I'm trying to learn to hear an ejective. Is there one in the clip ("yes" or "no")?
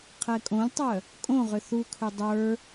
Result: yes